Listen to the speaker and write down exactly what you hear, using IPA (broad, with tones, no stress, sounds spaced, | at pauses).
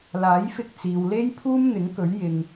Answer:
l aː˨˥ j f ɪ˧ k̚ t͡s iː˨ w l e˥ j pʰ uː˥ m n̪ ɪ˨˥ ŋ k ɵ˨˥ ɥ j ɪ˨ ŋ